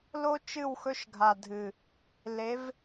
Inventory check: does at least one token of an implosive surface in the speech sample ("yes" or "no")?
no